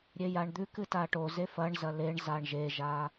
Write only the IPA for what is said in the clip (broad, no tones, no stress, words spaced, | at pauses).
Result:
ɾʲejaɳd̪ʉkɨ taʈoze fɐɳzɐ leɳzaɳ ʒeʒa